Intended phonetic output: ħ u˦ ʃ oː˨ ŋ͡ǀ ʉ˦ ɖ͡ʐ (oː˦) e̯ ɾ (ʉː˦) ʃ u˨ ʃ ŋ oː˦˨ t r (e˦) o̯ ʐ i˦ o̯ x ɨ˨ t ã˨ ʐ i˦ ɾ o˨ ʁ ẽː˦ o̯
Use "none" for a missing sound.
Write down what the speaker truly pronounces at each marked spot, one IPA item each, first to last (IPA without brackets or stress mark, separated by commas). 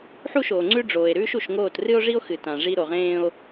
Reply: oː˨, ʉː˦, ɨ˦